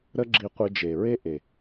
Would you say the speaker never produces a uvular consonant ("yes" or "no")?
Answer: no